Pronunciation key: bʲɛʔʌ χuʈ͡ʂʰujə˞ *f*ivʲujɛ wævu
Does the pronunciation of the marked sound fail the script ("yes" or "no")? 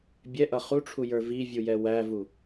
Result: yes